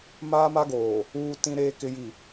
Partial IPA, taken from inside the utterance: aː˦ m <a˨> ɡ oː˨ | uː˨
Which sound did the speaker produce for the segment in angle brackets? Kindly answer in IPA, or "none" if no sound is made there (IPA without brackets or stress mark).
a˦